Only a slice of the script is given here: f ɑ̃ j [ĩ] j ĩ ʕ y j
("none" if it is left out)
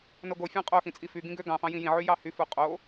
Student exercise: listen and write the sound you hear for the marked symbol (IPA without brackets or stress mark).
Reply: ĩ